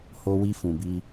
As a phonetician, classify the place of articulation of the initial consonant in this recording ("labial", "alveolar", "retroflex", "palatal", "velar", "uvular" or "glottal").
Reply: glottal